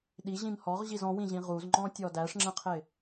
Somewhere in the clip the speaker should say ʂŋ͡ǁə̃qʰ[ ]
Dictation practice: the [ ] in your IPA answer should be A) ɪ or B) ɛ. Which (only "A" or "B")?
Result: A